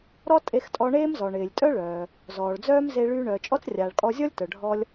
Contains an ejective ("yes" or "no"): yes